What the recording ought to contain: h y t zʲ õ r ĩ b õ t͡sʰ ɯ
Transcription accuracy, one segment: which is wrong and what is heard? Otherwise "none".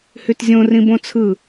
none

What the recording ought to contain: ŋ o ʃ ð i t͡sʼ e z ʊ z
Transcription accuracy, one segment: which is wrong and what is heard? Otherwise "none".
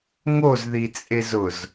ʃ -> z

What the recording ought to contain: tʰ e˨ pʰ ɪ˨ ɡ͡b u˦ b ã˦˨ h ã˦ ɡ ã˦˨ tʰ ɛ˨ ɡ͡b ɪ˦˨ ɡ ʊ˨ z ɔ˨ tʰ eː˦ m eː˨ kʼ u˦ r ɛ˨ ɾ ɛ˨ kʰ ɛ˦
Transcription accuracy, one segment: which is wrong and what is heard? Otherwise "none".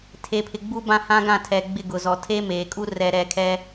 none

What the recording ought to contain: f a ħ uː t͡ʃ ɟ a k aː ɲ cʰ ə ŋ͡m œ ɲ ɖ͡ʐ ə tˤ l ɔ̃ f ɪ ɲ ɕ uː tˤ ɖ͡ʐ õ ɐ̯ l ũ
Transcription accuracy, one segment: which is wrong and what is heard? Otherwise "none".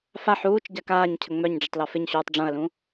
ɔ̃ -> ɔ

